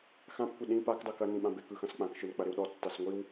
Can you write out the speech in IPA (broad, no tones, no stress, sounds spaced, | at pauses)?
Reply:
x ã p kʷ ɪ ɗ ĩ p a k dˤ ɯ k ɐ n ĩ ɓ ã b ɪ k ɯ x ɐ̃ s k͡p ã k ʃ ɯ n k͡p ɐ ɾ ɪ w ɗ ɔ tː a s ŋʷ i w